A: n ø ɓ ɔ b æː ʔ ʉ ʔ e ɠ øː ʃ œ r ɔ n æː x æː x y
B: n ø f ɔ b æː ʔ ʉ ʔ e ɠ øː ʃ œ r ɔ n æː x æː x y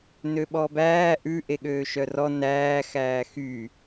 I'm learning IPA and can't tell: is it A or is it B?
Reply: A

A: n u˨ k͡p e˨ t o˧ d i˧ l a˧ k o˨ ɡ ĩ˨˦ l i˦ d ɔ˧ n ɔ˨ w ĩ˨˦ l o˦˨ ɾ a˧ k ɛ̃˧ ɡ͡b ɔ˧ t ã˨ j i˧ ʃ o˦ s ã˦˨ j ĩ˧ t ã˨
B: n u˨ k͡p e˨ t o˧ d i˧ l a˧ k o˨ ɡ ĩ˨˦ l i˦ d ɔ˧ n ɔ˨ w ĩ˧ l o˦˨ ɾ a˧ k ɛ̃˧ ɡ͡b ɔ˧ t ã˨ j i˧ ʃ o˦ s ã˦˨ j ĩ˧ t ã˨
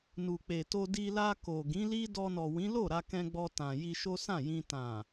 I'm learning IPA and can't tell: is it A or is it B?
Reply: A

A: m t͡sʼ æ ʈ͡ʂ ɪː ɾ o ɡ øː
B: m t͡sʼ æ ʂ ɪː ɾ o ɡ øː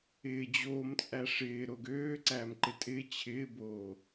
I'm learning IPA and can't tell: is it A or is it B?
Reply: B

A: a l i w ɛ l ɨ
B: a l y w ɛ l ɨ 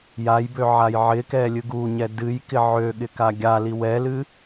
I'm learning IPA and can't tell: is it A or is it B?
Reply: A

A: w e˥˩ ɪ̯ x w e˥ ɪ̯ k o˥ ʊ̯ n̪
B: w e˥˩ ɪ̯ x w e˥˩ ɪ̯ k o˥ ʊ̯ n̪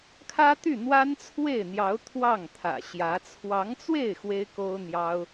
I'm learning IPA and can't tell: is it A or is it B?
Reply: A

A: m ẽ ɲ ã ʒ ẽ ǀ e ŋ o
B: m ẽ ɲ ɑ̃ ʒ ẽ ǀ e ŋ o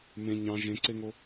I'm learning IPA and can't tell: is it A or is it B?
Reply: B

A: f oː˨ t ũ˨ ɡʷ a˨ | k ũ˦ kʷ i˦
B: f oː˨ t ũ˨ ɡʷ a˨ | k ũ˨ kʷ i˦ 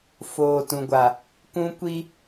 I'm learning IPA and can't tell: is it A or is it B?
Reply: A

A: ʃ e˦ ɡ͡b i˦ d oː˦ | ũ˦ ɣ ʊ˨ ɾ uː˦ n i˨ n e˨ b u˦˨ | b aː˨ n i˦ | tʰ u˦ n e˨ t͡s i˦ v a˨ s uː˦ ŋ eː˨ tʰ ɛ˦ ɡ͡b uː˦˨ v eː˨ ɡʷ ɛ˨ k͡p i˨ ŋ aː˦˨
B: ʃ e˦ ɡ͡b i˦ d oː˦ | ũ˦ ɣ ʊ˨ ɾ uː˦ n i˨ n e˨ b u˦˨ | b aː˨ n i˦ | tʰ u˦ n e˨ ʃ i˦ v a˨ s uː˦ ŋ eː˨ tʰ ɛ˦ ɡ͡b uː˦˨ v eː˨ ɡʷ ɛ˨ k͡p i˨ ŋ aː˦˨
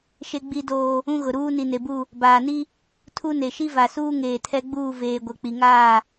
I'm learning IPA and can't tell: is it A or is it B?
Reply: B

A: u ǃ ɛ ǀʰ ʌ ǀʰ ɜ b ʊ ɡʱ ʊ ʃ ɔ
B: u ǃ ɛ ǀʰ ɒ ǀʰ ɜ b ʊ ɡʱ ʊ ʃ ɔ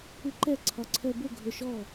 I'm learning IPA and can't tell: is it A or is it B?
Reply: B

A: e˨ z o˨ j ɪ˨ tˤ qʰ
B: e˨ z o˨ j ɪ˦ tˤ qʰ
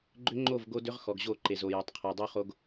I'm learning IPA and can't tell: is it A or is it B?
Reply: A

